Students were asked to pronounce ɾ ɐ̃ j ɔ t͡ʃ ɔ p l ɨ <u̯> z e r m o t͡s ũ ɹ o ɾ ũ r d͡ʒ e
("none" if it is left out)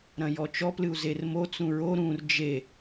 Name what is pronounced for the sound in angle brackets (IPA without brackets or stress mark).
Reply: u̯